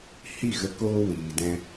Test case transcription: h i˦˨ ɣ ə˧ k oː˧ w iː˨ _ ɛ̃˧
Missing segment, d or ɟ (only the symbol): d